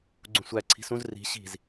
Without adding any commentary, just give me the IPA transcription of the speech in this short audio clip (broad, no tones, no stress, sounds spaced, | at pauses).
ɡ͡ǀ ũ sʷ æ ǀʰ i̤ s ũ z r i̤ ɕ i̤ z